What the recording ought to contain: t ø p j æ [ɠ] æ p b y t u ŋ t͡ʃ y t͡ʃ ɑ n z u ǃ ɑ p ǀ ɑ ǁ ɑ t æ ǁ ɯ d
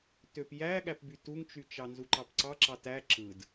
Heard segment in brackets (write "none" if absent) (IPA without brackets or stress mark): ɠ